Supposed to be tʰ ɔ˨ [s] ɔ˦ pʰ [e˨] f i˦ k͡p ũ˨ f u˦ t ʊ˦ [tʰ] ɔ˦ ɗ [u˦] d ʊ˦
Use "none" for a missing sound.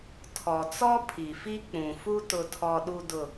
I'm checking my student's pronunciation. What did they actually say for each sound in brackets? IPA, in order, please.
t͡s, i˨, tʰ, u˦

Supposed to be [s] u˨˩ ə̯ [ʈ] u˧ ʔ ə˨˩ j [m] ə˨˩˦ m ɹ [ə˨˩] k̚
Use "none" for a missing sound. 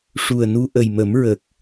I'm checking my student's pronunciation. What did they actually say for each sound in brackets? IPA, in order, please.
ʂ, n, m, ə˨˩

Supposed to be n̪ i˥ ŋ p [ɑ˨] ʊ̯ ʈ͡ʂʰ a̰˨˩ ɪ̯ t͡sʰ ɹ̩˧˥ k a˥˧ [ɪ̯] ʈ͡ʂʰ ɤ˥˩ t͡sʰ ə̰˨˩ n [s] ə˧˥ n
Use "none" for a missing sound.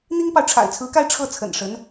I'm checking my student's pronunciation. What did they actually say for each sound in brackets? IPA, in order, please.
ɑ˨, ɪ̯, ʂ

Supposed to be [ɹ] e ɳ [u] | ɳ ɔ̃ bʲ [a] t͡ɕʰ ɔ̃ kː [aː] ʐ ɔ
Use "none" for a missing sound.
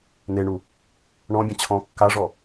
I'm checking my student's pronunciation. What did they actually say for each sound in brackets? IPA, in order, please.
n̪, u, ã, a

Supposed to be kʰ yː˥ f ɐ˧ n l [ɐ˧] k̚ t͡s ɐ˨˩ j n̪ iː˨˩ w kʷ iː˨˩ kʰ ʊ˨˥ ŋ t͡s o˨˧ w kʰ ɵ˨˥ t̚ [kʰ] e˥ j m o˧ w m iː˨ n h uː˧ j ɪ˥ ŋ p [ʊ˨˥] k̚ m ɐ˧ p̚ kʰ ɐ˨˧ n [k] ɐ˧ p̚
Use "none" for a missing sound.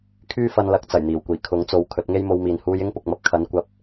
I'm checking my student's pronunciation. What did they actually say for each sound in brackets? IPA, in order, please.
ɐ˨˥, ŋ, ʊ˨, kʷ

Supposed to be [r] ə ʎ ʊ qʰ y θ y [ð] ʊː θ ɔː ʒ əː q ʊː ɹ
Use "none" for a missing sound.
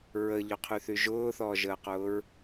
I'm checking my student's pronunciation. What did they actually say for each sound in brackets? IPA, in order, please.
ɹ, ʒ

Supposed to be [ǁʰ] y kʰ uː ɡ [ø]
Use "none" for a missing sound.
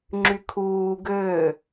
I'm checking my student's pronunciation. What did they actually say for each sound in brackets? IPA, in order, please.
ŋ͡ǁ, ø

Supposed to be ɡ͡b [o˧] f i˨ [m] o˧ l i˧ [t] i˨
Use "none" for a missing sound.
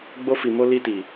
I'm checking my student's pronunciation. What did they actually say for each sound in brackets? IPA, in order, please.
o˧, m, t

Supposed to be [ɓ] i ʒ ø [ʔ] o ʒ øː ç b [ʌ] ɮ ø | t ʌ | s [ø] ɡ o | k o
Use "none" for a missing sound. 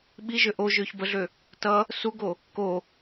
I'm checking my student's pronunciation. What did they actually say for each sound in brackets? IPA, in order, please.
ɓ, ʔ, ə, u

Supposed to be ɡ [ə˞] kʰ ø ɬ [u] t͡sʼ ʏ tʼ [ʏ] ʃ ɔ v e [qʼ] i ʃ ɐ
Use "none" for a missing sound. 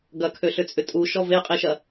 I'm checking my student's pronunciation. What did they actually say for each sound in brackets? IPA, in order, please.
ɐ, ʏ, u, qʼ

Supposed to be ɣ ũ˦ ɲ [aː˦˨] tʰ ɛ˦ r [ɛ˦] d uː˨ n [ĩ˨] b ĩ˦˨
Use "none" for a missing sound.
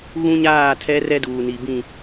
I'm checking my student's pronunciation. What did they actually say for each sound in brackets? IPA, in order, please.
aː˦˨, ɛ˦, i˨

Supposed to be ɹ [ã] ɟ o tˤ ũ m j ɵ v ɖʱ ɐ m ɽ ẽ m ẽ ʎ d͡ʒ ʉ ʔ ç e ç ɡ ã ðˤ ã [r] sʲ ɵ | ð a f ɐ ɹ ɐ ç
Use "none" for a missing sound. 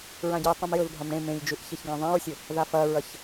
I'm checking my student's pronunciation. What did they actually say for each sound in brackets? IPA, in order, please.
ã, ɹ

